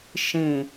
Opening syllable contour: low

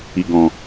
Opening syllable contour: low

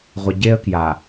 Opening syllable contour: low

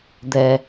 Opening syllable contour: low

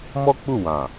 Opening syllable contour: high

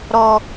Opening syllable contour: high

